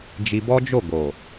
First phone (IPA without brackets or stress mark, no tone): d͡ʒ